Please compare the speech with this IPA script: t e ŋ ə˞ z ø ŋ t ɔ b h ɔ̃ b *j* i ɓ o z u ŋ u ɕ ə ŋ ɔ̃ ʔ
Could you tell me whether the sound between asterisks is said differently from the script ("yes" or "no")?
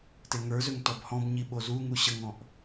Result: yes